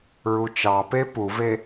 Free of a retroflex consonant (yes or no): yes